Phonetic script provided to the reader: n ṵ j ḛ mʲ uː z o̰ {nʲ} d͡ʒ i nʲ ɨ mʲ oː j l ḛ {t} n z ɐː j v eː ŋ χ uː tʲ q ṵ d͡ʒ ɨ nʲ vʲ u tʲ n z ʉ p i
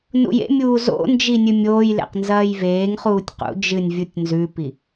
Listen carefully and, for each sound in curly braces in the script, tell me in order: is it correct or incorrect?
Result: incorrect, incorrect

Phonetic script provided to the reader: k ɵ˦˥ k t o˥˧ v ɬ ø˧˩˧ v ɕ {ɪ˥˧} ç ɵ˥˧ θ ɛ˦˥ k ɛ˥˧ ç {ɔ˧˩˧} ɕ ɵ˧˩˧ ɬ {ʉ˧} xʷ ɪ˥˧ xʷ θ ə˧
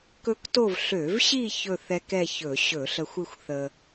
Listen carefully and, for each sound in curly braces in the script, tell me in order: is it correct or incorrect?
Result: incorrect, incorrect, incorrect

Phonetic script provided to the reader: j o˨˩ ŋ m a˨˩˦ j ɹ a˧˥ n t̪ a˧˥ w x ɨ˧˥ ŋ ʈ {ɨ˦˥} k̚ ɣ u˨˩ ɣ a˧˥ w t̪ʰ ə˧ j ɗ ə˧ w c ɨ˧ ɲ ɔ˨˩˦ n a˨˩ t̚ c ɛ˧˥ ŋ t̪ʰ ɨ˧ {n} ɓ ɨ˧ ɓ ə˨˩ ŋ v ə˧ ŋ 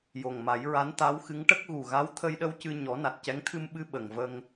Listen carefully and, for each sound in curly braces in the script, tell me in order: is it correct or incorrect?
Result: incorrect, incorrect

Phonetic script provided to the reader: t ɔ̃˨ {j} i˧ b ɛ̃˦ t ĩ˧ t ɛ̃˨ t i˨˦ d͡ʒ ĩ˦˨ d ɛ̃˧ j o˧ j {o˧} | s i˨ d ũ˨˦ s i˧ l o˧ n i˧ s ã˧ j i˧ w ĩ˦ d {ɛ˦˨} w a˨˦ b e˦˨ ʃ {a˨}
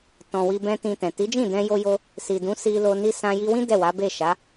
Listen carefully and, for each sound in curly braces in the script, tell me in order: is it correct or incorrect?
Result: incorrect, correct, correct, incorrect

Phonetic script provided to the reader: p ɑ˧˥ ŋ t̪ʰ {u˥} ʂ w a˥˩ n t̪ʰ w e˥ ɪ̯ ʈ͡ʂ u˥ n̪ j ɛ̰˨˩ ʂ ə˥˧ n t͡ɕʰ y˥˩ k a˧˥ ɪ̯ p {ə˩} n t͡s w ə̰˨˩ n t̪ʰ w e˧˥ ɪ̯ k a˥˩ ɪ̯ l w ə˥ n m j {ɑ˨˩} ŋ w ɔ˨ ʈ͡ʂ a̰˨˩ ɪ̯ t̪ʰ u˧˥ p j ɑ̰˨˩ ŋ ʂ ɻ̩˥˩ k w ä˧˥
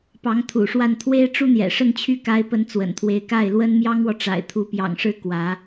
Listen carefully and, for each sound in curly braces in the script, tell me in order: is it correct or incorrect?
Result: incorrect, incorrect, incorrect

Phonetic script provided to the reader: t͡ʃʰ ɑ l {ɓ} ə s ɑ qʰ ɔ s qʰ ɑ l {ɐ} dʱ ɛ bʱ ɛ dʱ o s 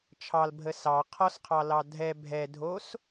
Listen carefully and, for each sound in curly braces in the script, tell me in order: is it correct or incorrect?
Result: incorrect, incorrect

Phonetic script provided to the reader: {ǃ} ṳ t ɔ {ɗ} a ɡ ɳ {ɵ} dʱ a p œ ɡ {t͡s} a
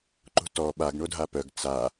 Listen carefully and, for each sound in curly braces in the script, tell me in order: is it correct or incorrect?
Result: correct, incorrect, incorrect, correct

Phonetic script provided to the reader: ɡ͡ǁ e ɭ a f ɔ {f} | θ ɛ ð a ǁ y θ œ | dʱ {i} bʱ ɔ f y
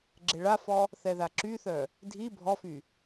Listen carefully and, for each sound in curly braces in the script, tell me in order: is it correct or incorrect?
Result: incorrect, correct

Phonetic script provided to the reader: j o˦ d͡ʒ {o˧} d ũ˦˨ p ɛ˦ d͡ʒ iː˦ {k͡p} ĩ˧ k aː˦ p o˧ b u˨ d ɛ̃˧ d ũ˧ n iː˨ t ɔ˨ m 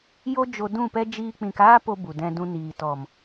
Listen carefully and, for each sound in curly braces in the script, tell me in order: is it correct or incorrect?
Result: correct, correct

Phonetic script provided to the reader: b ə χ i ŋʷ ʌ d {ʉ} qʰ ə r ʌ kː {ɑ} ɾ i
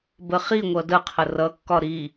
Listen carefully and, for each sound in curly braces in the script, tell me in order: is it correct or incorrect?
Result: incorrect, incorrect

